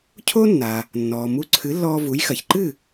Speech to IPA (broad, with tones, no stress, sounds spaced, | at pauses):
cʰ o˥ nː a˩ | nː ɔː˩ m u˧ ǀʰ ɨ˩˥ lː ɔː˧ v u˩˥ j x ɐ˩ ç ǃ ɨ˥˩